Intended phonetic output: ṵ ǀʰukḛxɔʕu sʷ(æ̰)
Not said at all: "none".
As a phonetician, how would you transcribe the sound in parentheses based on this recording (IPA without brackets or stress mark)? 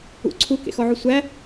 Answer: æ